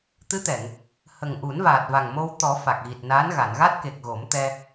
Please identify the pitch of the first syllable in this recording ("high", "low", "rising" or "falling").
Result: rising